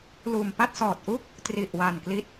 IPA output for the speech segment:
l uː˨˩ m p a˥˩ t̚ s ɔː˨˩ t̚ ʔ u˥˩ k̚ | t r i˨˩ ʔ w a˨˩ n k l i˦˥ t̚

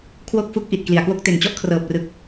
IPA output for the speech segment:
kʰ w o˥˩ k̚ f u˦˥ k̚ ʔ i˨˩ t̚ k l i˨˩ a̯ k w o˥˩ k̚ t e˨˩ n t͡ɕ ɔ˦˥ ʔ kʰ r ɤː˨˩ p̚ r ɯ˨˩ k̚

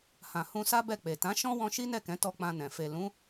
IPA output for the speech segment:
h ã˨ h ũ˧ s a˦ b ɛ˦˨ k͡p e˨ t ã˨˦ ʃ ɔ̃˦ w ɔ̃˧ ʃ i˦ n ɛ˦˨ k ɛ̃˨˦ t ɔ˧ k͡p ã˧ n ɛ̃˨ f e˨ l ũ˨˦

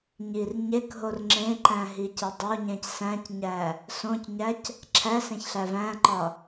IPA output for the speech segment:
ɲ i r ɲ e k ɦ o r ŋ͡ǁ ẽ ǃ æ̃ ɦ i c e dˤ o ɲ ẽ c s æ̃ c ɲ æ | s õ c ɲ æ c | ǁʰ æ s ẽ ç ɬ æ v æ̃ ǃ ɒ

